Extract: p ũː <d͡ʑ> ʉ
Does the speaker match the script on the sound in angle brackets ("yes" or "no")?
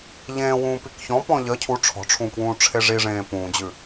yes